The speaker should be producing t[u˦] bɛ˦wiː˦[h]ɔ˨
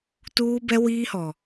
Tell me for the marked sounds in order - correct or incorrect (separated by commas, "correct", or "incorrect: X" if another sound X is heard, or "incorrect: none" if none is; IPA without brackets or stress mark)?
incorrect: uː˦, correct